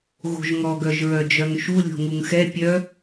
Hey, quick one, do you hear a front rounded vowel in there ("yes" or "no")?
yes